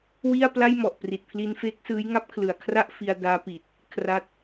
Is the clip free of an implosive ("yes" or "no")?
yes